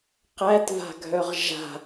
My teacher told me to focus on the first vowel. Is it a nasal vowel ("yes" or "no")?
no